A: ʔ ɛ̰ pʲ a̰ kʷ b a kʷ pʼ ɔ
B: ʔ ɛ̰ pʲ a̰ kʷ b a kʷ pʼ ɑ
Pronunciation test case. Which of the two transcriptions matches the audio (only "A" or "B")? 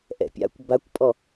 A